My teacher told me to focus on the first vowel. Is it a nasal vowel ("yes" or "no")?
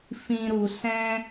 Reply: yes